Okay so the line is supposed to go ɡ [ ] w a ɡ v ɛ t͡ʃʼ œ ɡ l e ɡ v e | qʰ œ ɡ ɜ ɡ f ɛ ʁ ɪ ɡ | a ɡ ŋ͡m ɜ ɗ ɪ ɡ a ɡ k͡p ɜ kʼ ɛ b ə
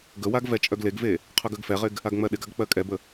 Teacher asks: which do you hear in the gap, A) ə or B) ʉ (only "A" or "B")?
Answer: A